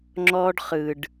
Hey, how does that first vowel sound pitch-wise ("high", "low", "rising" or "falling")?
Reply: high